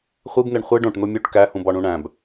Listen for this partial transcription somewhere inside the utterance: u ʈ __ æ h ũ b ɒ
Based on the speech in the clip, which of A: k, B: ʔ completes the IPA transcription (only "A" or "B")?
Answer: A